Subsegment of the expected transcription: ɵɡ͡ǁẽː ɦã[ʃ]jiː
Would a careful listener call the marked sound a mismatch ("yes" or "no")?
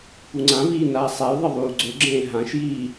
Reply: no